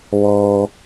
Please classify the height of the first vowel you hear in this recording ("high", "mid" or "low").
mid